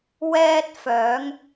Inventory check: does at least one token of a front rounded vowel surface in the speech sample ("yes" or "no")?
yes